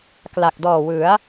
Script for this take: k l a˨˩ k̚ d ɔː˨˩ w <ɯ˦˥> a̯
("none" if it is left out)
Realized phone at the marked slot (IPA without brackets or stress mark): ɯ˩˦